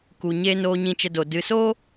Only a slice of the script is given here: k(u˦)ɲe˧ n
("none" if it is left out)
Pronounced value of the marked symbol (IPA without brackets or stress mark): u˨